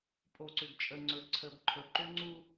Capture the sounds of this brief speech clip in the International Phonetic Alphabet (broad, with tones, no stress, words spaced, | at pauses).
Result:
pʼo˨ǀʏ˨ɡt͡ʃʼə˨ŋ͡ǀɵ˨ ǀʰə˨bǃʰɵ˨ǃʏ˦ ŋ͡ǀu˦